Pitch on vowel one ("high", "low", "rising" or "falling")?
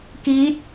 rising